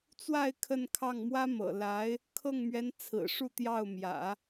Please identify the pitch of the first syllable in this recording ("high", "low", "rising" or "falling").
falling